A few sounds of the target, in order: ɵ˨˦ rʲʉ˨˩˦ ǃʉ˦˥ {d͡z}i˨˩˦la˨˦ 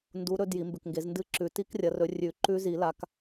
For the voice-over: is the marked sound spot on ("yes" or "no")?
no